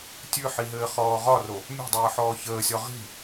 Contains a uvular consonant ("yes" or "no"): yes